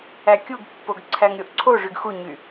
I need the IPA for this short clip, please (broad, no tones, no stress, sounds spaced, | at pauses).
æ kʲ u ɡ pː o ɡ ǀʰ æ ŋ ɾʲ o ʔ ǀʰ o ʐ y ɡ x u ɲ y